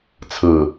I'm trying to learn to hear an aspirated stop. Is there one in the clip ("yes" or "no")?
yes